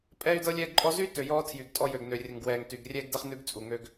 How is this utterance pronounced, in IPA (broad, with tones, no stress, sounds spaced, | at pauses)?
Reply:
pʼ ɛː˦ y̯ d ɤ˦ lʲ ɛː˦ ɡ ǃʼ ɔ˦ z y˦ t ø˨ j ɔː˦ tʰ j y˨ ɡ tʼ ɔ˦ j ø˨ ɡ n ø˨ rʲ ə˨ ŋ ɡ w ɛː˨ ŋ t y˨ ɡ rʲ ɛː˦ ɡ d ɛ˦ χ n ʉ˦ ɡ t͡sʼ u˨ ŋ øː˦ ɡ